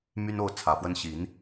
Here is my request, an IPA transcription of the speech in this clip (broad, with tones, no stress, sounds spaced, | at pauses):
m y˦ n o˥˨ ʊ̯ t͡sʰ ä˨˩ f w ə˦ n ɕ i˨˦ n